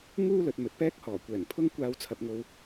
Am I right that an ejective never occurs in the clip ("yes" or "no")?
yes